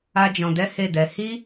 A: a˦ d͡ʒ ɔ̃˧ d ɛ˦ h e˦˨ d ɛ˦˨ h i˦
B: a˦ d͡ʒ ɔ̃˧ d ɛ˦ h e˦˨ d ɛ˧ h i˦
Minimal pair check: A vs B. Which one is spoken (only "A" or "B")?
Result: B